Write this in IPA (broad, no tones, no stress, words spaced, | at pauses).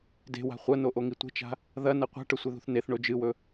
de̤wa̤ χʷɐnoʔoŋi tʷe̤t͡ʃa̤ | ðɐnɐ qʷa̤ʈɵsʷeðṳθ neθɳo d͡ʒɨwɵ